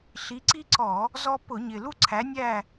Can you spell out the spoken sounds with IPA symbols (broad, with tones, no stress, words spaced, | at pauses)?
ɬi˨˦ǀi˦ǀɔ˧˩˧ | zɔ˦ pʊ˧˩˧ɲɪ˨˩ lu˦ǀʰæ˨˦nʲæ˦˨